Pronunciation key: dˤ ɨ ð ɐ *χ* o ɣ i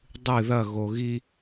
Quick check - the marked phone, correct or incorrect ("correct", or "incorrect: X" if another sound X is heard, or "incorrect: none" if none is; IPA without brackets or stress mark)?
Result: incorrect: ɣ